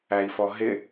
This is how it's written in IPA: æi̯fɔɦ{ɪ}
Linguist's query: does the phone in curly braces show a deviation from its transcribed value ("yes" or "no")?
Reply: no